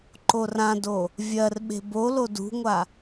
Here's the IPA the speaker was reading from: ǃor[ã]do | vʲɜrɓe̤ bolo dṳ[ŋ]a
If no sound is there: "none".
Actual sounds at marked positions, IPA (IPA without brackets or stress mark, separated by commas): ã, ŋʷ